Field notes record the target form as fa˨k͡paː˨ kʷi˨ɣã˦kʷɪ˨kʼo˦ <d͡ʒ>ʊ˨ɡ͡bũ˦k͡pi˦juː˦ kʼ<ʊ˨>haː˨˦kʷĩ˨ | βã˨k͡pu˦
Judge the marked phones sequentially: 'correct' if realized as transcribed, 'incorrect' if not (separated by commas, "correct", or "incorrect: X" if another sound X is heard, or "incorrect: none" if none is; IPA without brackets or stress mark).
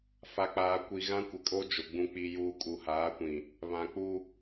correct, incorrect: u˨